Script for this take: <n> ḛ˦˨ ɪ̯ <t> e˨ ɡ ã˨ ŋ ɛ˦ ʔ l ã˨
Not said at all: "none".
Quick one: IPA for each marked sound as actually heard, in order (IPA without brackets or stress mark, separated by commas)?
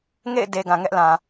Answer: ŋ, d